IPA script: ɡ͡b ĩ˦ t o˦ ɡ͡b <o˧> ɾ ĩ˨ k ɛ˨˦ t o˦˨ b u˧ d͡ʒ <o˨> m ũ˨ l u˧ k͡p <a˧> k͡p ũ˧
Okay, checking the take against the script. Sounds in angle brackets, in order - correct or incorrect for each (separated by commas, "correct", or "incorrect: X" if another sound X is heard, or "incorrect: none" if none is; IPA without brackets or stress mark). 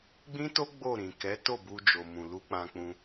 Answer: incorrect: o˦˨, correct, incorrect: ã˧